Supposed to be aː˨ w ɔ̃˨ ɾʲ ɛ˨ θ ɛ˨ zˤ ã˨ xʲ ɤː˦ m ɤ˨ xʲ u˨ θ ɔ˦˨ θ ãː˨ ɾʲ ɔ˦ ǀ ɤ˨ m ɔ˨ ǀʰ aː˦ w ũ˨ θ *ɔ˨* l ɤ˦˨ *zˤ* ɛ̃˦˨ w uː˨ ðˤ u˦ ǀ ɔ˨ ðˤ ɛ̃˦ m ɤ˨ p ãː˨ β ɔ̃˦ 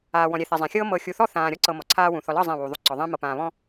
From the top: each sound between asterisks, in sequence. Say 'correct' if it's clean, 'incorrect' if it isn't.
correct, correct

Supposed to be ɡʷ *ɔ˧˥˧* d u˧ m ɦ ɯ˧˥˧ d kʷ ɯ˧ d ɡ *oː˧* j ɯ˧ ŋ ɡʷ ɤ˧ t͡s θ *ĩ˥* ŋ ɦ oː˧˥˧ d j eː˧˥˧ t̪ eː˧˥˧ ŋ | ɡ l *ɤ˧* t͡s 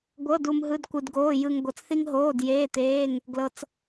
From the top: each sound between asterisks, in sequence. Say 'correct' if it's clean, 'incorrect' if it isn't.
incorrect: ɤ˧˥˧, incorrect: oː˧˥˧, incorrect: i˥, correct

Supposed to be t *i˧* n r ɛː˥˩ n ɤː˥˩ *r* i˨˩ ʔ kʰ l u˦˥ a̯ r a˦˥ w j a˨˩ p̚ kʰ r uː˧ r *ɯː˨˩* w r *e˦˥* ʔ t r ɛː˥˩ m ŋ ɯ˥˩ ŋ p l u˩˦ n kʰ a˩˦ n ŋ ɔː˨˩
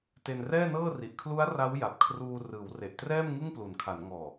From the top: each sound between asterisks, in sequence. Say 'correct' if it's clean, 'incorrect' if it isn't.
incorrect: e˧, correct, incorrect: ɯː˩˦, incorrect: e˨˩

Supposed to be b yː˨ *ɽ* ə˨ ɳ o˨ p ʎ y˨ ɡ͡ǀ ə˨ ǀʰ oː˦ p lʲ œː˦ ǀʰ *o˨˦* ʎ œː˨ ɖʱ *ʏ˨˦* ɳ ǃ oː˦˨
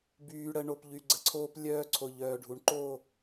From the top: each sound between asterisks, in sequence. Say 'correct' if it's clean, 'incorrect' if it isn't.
correct, incorrect: o˨, incorrect: u˨˦

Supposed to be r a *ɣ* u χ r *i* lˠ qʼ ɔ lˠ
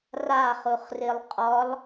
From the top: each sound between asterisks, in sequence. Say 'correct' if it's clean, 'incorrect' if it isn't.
incorrect: χ, correct

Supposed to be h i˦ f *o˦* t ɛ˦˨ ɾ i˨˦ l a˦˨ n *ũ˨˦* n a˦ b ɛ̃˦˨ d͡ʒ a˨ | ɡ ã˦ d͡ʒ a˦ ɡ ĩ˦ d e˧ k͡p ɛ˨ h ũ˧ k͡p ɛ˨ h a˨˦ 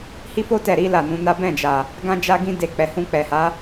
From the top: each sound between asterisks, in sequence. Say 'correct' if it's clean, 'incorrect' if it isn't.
correct, correct

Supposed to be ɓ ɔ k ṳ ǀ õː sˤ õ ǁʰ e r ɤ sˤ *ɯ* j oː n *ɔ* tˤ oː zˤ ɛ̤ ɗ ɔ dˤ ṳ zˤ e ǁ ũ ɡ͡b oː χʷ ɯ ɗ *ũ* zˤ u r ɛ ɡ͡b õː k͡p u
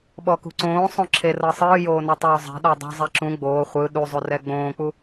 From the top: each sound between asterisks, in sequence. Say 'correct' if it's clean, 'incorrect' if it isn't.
incorrect: ɯː, correct, incorrect: u

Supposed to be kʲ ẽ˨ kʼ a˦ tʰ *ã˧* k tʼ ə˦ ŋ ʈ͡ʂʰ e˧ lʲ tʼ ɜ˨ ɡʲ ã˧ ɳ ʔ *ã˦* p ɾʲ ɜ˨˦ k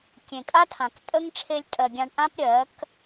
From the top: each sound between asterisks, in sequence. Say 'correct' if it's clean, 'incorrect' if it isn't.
incorrect: ã˨, correct

